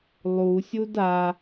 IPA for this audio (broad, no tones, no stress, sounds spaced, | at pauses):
lˠ u sʲ u d a